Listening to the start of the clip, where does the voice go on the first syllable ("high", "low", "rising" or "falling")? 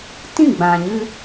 falling